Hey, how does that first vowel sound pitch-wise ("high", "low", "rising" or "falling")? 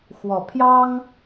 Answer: low